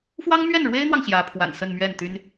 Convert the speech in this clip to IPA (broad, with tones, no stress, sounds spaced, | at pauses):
f w ɑ˥ ŋ m ɥ ɛ˥˩ n ɻ w e˥ ɪ̯ n̪ w ɑ˨ ŋ ɕ j ä˧˥ pʰ w a̰˨˩ n s ə˥˧ n m ɥ ɛ˥˩ n t̪ y˥ n